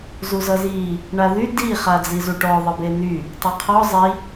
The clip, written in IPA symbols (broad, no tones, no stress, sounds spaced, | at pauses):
z u z ʌ z i | ɳ a ð y d i χ a d͡z i z u ʈ ɔ ðˤ ʌ b e n y | tˤ a qʰ ɔ zˤ i